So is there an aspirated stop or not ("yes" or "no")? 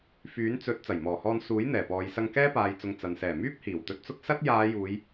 no